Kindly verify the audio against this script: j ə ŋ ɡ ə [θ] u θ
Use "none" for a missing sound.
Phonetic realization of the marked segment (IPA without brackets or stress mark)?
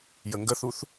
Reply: θ